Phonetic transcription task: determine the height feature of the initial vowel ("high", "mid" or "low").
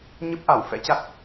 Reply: mid